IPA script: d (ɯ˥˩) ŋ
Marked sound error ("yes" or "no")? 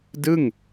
no